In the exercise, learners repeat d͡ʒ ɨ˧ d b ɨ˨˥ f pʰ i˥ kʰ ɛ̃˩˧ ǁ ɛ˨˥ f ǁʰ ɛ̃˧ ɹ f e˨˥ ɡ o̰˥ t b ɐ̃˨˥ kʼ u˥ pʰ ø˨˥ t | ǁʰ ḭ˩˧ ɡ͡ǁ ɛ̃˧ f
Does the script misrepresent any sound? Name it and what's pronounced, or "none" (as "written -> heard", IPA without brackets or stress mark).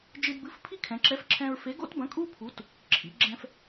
ø˨˥ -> u˨˥